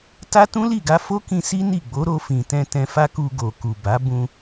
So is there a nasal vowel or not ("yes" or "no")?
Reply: yes